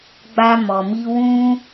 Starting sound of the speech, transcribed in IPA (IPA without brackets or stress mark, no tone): ɡ͡b